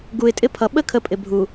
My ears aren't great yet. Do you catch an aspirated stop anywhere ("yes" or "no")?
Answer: yes